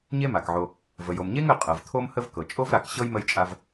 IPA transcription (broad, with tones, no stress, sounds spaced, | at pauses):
ɲ e˦ m a˩ k ʕ o˨ | v ə˩ j o˩ m ɲ e˦ ŋ ə˨ qʼ ɤ˩ v t̪ʰ o˦ m h ə˦ v k ɤ˩ t͡ʃʼ o˥ v ɾ a˨ k ɕ ɤ˥ j m ə˦ j t͡ʃʼ a˦ v